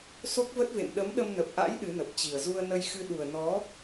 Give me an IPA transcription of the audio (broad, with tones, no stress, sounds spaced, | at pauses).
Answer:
s o˦˥ k̚ v ə˦˥ t̚ v ḛ˧˨ m ɗ ə˨˦ m ɗ ə˧ m n ə˨˩ p̚ ʔ a̰˧˥ j ɗ ɨ˨˦ n ə˨˩ p̚ t͡ɕ i˨˩ ə̯ z u˧ ə̯ n ə˧ j x ɨ˧ ɗ u˨˩ ə̯ n ɔ˨˦